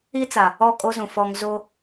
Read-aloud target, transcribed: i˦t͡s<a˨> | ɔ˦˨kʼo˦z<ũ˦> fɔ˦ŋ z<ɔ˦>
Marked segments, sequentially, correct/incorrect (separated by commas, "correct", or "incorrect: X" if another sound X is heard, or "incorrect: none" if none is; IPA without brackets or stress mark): correct, incorrect: ũ˨, incorrect: o˦